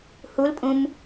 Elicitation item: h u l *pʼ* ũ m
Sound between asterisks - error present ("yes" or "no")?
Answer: no